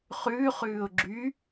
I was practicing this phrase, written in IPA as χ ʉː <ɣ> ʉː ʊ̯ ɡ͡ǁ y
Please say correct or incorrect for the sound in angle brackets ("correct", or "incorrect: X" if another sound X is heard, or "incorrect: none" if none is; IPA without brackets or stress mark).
incorrect: χ